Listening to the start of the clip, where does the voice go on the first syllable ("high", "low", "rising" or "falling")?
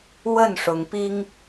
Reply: falling